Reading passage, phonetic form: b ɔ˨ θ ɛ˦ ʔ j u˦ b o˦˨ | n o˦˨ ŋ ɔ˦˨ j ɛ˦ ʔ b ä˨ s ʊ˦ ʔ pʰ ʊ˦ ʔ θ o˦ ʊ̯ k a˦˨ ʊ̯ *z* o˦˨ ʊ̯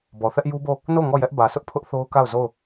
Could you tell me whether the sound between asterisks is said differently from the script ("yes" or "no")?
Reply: no